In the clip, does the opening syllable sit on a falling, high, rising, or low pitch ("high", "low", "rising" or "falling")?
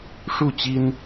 falling